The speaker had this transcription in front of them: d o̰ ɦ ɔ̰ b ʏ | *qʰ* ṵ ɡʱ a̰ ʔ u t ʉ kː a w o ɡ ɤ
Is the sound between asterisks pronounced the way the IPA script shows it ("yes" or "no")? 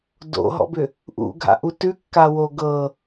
no